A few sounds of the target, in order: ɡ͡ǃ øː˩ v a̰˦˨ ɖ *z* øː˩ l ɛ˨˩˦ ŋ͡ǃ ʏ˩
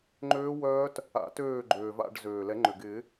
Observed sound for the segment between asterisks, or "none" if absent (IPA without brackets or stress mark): z